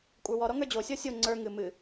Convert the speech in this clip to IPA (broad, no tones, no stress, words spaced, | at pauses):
kʷʼə˞wɔ ɾɔŋə˞d͡ʑo sʲɔsʲo ŋ͡ǀə˞ ŋɨ mɨ